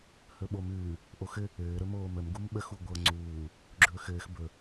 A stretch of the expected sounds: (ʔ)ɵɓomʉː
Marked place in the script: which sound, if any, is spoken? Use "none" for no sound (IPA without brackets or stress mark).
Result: h